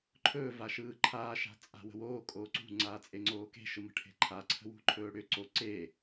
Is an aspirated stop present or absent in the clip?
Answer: present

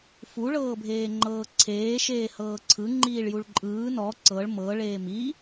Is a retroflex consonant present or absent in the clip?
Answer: present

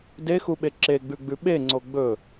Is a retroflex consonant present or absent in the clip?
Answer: absent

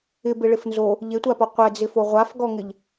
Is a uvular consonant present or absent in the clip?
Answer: present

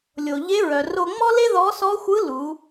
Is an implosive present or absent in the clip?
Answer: absent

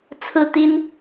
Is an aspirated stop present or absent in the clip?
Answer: present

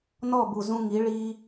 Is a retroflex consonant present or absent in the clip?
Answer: present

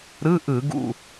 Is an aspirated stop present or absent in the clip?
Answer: absent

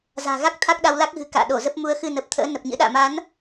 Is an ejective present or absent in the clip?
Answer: absent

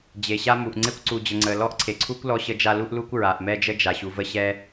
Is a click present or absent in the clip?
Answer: present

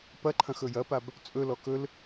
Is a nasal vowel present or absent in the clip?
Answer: present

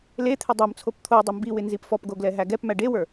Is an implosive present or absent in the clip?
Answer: absent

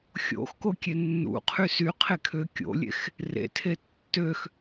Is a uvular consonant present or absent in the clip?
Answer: present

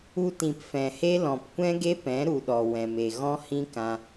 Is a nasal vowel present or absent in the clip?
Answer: present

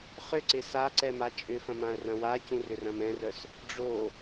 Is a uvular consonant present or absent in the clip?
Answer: present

